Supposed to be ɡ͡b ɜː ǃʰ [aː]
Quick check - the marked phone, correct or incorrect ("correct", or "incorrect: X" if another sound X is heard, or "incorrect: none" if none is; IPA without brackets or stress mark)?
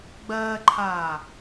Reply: correct